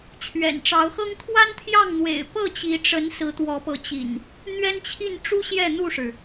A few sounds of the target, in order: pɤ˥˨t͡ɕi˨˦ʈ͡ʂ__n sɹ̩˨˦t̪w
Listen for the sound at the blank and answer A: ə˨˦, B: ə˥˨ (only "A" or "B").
A